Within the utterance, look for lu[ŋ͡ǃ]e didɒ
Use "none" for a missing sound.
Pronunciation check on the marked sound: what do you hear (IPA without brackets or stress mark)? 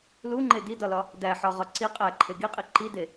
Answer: ŋ͡ǃ